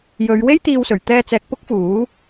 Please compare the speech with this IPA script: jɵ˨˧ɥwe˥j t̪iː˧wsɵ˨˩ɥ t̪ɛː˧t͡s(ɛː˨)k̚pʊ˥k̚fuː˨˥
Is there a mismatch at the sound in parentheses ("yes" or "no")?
no